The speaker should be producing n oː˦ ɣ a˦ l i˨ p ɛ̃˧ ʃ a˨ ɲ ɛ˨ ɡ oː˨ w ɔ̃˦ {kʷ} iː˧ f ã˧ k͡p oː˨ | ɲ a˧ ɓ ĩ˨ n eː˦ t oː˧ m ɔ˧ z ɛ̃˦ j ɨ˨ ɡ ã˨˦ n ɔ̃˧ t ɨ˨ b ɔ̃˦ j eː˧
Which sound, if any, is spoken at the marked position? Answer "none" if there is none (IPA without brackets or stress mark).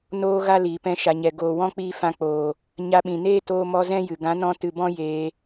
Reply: k͡p